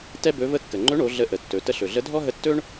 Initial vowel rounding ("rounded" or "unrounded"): unrounded